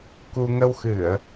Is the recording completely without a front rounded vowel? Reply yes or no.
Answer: yes